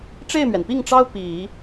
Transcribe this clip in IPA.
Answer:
ʈ͡ʂe˥˩ɪ̯mɥɛ˩npi˥˩ŋʈ͡ʂɑ˥ʊ̯ pi˨˩˦

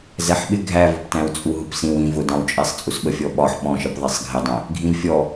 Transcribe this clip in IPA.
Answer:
zɛħɓɪ ɡʱævʊptæ̃w t͡sʼuɦʊpsĩw ĩ vʊdɑ̃wt͡ʃʼɛsˤ t͡sʼusɓəfʲɔ ɓɒħ ɓɔ̃ʃəp ðˤisˤɡʱɪdˤɛ̃ | ɡʱĩvfʲɔ

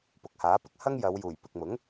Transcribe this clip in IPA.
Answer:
pʊ˨k̚haː˨˥pɪ˥k̚ hɐ˥ŋjɐ˨˧wjuː˨˩j pɪ˨k̚mʊ˨˥ŋ

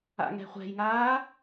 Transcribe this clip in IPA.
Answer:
a̰ŋɛ̤χʷɛ̤jŋaː

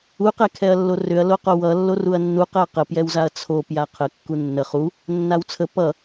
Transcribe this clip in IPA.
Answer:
uqɛ kʰɛɐ̯lːorʏɐ̯ loqowʌ lːoruɐ̯nːuqɛɐ̯ qəpjɛwzaɐ̯ t͡sʰo pjaqʰə kːunːə χu | nːawt͡sʰə pʌ

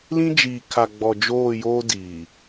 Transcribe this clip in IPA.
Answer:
lĩ˦d͡ʒiː˨ kʰa˨ɡ͡bɔ˨ d͡ʒoː˦˨joː˦ diː˨

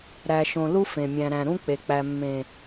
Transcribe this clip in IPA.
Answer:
ɾæ˨ʃõ˨ lu˦fẽ˨mʲæ̃˨ɾæ̃˨ ɾũ˦k͡pe˨k͡pæ˨ mːẽ˨

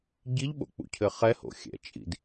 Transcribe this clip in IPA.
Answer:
ɟiʎɓo̰k͡pṵcʰɘ χɛho̰xʲɛ̰t͡ʃʼḭd

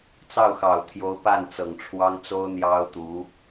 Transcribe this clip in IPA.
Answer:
t͡sɑ˥˩ʊ̯xɑ˨˩ʊ̯t̪ʰjo˧˥ʊ̯ pa˥˩n t͡sɤ˨˩ŋ ʈ͡ʂʰwɑ˥ŋt͡so˥ʊ̯ n̪jɑ˥ʊ̯t̪u˧˥

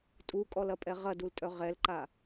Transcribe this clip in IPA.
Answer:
tʼukʼɔlɐpʼɛ ʁɐdultʼœ ʁɛlǃa

